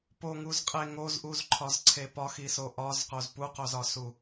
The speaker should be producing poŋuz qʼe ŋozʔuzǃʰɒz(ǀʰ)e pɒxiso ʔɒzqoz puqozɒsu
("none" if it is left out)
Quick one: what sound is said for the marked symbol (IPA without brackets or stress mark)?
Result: ǀʰ